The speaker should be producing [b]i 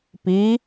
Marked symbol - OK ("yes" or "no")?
no